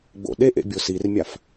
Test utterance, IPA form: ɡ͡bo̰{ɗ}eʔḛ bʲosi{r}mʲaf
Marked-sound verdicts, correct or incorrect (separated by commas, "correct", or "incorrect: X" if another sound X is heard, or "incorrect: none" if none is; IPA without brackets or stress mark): correct, correct